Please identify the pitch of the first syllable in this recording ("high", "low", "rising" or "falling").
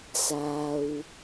low